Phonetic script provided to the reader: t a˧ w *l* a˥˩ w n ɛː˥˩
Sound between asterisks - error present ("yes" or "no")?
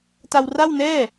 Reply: yes